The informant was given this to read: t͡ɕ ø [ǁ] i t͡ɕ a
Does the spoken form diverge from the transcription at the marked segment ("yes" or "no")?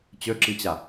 no